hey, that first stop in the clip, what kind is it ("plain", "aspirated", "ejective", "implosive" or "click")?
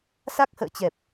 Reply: plain